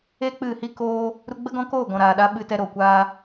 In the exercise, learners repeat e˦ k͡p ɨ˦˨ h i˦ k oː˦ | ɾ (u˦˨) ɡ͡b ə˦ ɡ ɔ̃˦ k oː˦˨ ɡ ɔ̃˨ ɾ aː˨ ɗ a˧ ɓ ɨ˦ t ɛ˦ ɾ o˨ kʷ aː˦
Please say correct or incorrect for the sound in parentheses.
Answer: incorrect